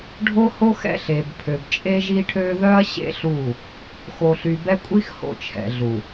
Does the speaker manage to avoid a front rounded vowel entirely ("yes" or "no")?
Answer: no